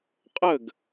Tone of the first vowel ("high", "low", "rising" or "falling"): falling